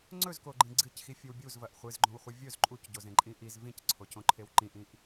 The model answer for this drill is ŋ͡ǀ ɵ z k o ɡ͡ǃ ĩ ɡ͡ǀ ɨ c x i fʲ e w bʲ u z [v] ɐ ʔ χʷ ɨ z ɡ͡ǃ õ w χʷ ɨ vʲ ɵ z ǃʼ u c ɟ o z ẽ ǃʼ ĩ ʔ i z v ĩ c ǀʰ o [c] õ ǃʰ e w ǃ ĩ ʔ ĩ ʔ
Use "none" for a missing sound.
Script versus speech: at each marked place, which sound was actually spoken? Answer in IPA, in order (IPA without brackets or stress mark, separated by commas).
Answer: v, c